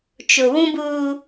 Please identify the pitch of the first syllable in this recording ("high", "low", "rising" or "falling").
low